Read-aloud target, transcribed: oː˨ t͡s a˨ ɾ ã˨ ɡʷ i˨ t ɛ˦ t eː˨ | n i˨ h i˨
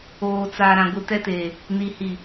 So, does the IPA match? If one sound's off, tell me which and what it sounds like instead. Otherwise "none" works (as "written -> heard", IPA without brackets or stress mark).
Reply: none